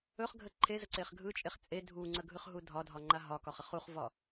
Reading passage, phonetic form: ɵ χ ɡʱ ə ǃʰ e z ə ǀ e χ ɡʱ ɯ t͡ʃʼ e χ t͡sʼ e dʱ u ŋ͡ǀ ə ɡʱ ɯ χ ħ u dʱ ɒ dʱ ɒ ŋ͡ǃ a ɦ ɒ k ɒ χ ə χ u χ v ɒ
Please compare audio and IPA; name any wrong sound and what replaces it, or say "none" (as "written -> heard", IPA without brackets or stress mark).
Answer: ħ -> ɦ